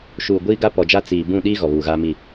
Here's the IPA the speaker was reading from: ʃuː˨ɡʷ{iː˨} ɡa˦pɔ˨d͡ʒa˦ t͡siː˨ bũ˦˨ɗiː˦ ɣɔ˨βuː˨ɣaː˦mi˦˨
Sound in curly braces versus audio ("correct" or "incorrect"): incorrect